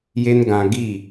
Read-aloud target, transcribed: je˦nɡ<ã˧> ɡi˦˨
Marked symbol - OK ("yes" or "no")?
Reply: yes